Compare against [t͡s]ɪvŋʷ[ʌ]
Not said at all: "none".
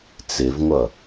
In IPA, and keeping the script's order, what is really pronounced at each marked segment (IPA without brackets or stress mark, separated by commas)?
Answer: t͡s, ʌ